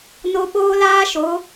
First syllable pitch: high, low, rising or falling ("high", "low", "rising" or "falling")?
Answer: high